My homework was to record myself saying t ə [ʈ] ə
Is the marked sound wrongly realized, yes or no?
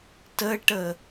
no